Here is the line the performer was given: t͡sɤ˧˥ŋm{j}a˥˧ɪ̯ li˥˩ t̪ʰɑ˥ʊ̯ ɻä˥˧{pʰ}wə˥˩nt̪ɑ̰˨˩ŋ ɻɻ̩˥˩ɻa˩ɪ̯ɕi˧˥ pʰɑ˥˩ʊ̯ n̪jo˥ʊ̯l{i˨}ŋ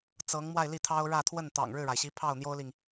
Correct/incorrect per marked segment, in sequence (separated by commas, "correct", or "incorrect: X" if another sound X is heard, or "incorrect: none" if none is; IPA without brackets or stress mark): incorrect: w, incorrect: t̪ʰ, correct